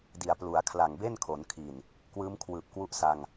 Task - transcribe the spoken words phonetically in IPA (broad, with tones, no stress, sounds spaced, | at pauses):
d i˨˩ a̯ p l u˩˦ a̯ kʰ l a˨˩ ŋ b e˥˩ n kʰ o˩˦ n kʰ i˨˩ n | k w ɯː˦˥ m kʰ w ɯː˨˩ p̚ k w u˦˥ ʔ s a˧ ŋ